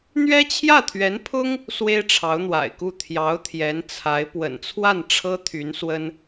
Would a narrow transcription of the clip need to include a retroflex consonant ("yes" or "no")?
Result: yes